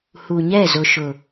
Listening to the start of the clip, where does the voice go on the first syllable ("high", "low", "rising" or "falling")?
low